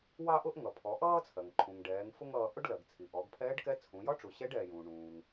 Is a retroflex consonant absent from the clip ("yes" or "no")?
no